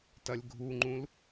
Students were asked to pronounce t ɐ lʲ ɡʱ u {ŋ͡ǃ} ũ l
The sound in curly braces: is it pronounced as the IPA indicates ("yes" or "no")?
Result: yes